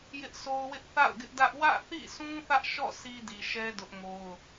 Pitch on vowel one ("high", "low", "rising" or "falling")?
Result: high